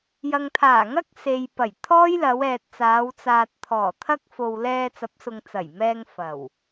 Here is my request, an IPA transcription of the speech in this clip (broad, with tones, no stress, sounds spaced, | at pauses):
j ɐ˨ ŋ t̪ʰ aː˨˩ ŋ ɐ˥ k̚ s e˨ j p ɐ˨˩ j t̪ʰ ɔː˥ j l ɐ˨˧ w ɛː˨ t̚ t͡s aː˨˧ w t͡s aː˨ t̚ t̪ʰ ɔː˨˩ t̪ʰ ɐ˥ k̚ f o˨ w l ɛː˧ t͡s ɐ˨˥ p̚ s ʊ˨ ŋ t͡s ɐ˨˩ j m ɛː˧ ŋ f ɐ˨˩ w